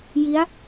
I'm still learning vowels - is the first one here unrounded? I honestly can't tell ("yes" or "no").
yes